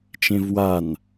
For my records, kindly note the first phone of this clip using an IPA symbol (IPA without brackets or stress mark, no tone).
t͡ʃ